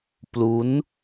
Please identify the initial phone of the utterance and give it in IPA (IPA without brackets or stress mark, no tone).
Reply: p